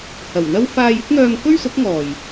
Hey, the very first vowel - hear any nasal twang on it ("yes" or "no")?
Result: no